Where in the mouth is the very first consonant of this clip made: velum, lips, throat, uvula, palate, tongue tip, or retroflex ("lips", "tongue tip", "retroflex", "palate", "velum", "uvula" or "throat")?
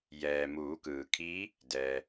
palate